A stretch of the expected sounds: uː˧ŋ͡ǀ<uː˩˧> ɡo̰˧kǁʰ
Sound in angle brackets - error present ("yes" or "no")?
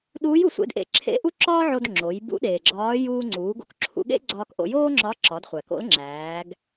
no